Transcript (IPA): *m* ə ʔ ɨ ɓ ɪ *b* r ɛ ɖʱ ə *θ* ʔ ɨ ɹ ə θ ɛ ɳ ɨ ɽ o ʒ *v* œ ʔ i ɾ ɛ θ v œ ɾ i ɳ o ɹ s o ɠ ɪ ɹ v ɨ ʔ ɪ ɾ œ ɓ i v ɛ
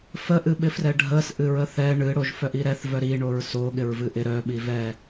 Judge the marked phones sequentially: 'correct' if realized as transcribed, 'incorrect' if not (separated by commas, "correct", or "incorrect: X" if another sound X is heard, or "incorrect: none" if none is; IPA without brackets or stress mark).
incorrect: f, incorrect: f, incorrect: s, incorrect: f